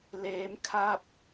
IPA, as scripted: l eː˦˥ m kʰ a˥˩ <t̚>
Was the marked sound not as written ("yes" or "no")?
yes